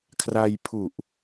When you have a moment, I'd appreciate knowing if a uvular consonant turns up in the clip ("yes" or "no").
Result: no